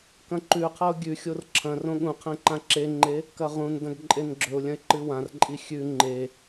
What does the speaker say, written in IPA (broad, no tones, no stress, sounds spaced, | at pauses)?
k ɐ̃ ǃ ʉ qʰ ɐ ʊ̯ ɡʲ ʉ xʲ o r ǁʰ ɐ̃ r õ ɠ ũ qʰ ẽ ǃ ã ǁ e ŋ͡ǃ e | k ɐ ʁ ũ n d ɐ̃ ɡ ǃʼ e n ɡ͡ǁ ɵ ʊ̯ lʲ ɐ̃ ɪ̯ ǃ ɨ w ã r ǃʼ i xʲ ʉ ŋ͡ǃ e